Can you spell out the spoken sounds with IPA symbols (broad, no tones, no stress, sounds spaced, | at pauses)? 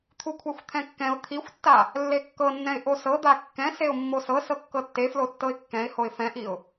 t̪ʰ u kʷʰ ɛ xʷ t̪ʰ ɛ̃ kː ɛ̃ ʊ̯ t̪ʰ i xʷ tː a | lː e kː ɤ nː ɛ̃ ɪ̯ ʔ o s ɤ d̪ a kː ɛ̃ s e ʊ̯ mː o s ɤ s ɤ kː ɤ tː e f l o tː ɤ ɪ̯ kː ɛ̃ ɪ̯ h o ɪ̯ f ɛ̃ ʔ i ʊ̯